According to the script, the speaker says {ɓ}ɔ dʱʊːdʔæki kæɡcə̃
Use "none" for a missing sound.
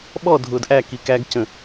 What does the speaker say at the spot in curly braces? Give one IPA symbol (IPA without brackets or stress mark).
ɓ